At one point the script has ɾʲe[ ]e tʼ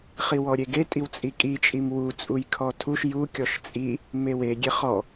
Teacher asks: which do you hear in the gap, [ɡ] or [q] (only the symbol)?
ɡ